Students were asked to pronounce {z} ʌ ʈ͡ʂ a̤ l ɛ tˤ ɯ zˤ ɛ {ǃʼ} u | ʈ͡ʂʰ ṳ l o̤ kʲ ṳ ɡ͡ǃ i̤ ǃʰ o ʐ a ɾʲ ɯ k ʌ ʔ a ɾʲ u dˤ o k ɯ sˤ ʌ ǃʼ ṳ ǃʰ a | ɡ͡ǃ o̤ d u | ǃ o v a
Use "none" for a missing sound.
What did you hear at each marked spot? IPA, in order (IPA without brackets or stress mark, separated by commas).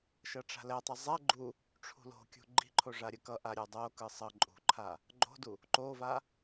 ʃ, ɡ͡ǃ